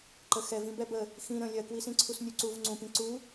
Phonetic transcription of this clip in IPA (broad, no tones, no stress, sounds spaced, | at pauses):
ǃ ə x ɛ v ĩ b ɛ b ə | x ĩ ɾ ə̃ lʲ ɜ k w i s ĩ ǀʰ u s nʲ u ǀ u v ŋ͡ǀ ũ p ĩ ǀ u